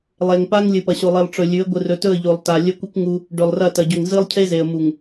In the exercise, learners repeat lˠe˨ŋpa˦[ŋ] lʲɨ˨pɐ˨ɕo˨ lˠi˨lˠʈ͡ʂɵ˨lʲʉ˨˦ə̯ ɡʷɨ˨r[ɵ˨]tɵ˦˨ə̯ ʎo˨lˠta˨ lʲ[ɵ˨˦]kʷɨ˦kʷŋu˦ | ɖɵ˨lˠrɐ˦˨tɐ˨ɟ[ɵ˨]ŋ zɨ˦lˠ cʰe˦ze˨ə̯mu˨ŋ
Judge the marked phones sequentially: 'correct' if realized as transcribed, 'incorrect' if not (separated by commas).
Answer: correct, correct, incorrect, correct